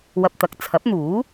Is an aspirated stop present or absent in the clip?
present